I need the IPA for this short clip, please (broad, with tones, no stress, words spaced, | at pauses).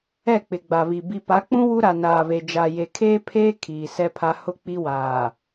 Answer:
ɛ˦˨k͡pɪ˨ɡ͡ba˨βi˨ bi˨pa˨˦k͡pũ˦ wu˦ɾa˨naː˨βe˨ d͡ʒa˨je˨kʰeː˦pʰeː˦ kʰiː˨sɛ˦pʰa˦ hʊ˦˨k͡pi˦waː˨